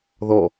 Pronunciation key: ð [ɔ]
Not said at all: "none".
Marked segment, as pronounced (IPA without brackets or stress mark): ɔ